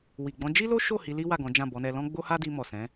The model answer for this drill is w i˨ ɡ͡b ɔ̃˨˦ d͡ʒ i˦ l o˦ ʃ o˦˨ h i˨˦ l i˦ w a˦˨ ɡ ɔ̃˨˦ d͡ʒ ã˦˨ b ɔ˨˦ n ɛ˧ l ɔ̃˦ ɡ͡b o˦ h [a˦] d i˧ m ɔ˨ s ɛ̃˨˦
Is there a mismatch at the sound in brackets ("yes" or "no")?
no